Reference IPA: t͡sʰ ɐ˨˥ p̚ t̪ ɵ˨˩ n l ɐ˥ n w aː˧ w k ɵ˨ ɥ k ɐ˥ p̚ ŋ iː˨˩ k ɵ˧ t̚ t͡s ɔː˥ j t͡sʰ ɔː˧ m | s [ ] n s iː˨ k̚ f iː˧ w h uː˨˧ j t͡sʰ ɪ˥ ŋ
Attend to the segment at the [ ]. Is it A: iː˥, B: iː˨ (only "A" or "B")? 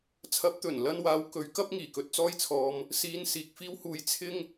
B